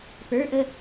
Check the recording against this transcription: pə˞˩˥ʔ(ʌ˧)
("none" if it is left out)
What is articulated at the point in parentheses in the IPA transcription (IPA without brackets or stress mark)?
ə˧